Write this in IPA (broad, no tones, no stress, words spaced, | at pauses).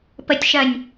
pətʲʃɜnʲ